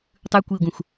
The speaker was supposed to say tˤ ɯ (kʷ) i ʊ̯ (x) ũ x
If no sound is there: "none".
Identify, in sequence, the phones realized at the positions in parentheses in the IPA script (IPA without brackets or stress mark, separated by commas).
kʷ, ɡ